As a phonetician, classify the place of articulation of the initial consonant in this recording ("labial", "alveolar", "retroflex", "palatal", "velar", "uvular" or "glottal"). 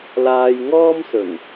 alveolar